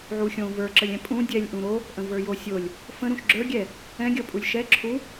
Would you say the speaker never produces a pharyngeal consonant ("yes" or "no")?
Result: no